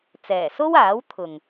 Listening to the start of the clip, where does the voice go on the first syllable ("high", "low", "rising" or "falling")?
low